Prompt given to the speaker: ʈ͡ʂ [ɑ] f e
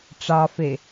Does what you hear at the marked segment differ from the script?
no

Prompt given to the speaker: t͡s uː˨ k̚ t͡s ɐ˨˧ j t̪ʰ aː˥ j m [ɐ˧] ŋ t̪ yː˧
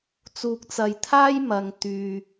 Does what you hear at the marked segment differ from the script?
no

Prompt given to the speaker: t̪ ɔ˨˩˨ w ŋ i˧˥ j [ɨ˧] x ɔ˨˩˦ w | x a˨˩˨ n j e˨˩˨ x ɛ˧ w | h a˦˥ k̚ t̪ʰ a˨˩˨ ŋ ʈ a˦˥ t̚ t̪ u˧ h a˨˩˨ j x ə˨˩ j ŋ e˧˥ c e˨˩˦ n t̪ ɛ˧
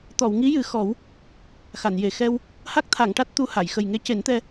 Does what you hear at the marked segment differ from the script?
yes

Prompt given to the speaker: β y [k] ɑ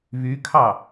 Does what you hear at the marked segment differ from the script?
yes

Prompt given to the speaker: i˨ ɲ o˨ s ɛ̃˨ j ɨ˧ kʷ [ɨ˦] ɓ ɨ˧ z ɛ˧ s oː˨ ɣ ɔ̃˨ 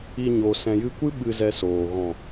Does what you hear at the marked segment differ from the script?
no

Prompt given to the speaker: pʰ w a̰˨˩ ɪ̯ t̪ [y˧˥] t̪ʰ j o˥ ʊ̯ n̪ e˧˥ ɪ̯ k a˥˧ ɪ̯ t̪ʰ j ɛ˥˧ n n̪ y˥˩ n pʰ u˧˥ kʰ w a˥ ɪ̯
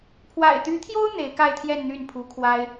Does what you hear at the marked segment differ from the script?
no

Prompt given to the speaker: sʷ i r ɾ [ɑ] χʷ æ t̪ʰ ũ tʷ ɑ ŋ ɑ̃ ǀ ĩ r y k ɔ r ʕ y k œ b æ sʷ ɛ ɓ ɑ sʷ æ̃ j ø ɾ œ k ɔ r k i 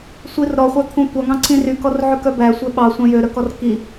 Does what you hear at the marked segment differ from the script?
yes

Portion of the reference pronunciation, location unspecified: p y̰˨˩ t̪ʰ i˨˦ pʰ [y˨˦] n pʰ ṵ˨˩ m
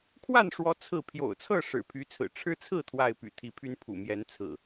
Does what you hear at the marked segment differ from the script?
yes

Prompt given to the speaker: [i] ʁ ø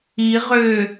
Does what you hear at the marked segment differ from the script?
no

